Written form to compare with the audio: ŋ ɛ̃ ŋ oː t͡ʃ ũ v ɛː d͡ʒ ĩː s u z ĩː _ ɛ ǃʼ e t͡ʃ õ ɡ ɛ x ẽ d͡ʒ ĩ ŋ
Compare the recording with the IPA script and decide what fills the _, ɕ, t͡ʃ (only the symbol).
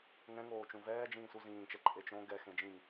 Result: t͡ʃ